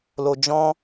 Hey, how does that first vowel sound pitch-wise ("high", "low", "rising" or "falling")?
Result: low